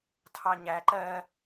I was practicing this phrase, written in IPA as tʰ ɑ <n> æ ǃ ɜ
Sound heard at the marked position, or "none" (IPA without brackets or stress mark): ɲ